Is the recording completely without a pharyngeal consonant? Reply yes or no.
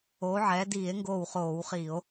no